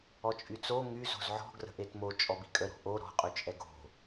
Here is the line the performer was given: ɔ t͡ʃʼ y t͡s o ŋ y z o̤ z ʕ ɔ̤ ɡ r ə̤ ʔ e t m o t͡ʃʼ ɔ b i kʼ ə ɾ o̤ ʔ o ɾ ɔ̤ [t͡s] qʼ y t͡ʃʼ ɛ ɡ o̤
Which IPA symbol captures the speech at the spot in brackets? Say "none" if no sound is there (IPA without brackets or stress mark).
none